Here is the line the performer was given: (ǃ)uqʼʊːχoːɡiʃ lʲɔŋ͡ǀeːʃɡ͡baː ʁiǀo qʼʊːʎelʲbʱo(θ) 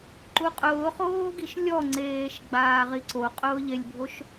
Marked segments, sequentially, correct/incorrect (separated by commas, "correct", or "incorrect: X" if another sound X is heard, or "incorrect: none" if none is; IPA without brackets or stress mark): correct, incorrect: ʃ